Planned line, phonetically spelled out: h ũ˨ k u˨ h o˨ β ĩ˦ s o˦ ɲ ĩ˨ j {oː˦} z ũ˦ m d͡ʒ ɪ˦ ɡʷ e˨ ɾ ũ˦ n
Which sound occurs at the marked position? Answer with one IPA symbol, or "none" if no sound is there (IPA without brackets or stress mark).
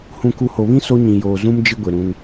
oː˨